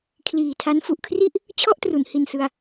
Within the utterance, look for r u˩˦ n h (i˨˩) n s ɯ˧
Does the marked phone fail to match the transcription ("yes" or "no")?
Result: no